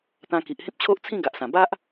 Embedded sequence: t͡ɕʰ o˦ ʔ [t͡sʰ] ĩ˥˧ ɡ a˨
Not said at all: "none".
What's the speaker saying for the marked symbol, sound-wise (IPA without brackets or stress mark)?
t͡sʰ